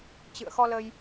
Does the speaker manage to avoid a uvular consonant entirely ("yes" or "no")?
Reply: yes